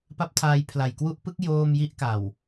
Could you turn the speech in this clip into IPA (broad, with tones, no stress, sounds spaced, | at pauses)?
p a˦˥ p̚ tʰ aː˧ j pʰ l a˨˩ j k w u˥˩ ʔ p ɯ˦˥ k̚ j oː˥˩ m j i˥˩ ʔ k a˨˩ w